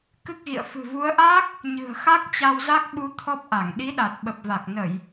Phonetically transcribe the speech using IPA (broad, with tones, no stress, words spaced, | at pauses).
kɨ˦˥k̚ɣḭ˧˨ə̯ fɨ̤˨˩vu˨˦ə̯ʔaː˦˥k̚ | ɲɨ̤˨˩ə̯xa˦˥k̚ t͡ɕa˧wza˦˥k̚ɓu˧ t̪ʰɔ˦˥p̚ʔa˧˩ŋ ɗi˨˦ɗa˨˩t̚ ɓə˨˩p̚va˨˩k̚ nə˧˩˨j